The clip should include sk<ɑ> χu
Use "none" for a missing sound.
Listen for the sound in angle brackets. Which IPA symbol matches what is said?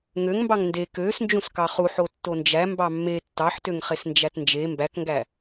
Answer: ɑ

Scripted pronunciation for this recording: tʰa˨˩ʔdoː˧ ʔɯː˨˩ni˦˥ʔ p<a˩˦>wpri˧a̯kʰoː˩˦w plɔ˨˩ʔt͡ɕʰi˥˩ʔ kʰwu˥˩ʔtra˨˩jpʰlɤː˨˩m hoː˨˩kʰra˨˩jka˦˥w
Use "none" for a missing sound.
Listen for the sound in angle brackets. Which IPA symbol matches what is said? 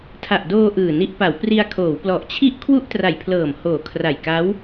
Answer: a˩˦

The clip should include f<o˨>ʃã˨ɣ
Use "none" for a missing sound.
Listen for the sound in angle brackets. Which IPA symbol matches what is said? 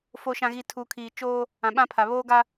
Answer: o˨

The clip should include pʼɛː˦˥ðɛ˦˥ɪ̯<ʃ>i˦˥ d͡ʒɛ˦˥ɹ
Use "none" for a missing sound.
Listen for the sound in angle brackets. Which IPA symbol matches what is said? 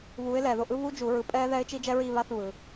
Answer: t͡ʃ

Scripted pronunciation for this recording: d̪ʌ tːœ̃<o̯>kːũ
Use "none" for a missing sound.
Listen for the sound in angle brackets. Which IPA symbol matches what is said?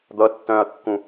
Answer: ɐ̯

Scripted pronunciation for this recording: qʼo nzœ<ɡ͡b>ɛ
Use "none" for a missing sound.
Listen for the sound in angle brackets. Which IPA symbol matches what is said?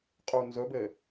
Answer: b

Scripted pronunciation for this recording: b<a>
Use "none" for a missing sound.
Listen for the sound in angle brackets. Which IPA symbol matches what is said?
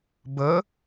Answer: ə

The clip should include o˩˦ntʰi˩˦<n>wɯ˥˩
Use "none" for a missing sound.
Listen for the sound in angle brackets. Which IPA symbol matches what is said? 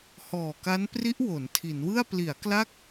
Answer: n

